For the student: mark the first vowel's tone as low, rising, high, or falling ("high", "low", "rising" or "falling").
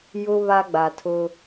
high